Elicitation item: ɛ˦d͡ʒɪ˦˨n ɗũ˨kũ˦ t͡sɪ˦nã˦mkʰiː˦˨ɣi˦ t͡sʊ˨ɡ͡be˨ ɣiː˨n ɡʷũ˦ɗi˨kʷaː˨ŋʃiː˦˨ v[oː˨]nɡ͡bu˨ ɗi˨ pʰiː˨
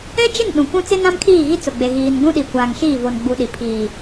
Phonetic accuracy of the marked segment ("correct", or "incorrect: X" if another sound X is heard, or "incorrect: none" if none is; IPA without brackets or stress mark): incorrect: o˨